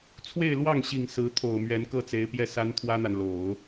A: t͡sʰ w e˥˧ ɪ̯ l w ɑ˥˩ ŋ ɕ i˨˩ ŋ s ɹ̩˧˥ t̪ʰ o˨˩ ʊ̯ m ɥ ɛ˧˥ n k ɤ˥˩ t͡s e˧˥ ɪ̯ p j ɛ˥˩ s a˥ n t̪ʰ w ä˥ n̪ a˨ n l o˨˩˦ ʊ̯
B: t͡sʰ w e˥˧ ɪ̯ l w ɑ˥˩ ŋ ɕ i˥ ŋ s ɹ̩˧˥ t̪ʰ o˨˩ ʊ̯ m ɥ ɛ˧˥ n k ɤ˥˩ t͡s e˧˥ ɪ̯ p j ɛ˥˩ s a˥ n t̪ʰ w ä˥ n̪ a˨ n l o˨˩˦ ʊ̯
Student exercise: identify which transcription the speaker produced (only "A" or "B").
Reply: A